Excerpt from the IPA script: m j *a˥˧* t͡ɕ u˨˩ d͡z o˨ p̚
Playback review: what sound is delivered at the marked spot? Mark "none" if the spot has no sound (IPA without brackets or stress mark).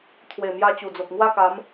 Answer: a˧